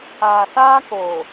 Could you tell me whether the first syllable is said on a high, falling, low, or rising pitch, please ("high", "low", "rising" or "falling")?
low